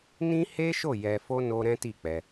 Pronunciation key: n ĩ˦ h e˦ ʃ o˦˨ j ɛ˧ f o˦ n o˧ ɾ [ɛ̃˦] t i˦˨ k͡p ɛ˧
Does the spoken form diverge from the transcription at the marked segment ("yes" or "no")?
no